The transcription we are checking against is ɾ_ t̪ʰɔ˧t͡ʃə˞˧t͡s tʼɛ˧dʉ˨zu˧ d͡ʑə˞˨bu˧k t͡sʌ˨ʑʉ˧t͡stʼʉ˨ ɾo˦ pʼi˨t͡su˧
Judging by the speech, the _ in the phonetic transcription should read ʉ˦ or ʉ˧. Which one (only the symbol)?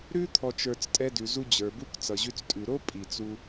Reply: ʉ˦